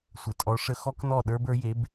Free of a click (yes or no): yes